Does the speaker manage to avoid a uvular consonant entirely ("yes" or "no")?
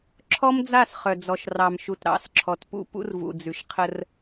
no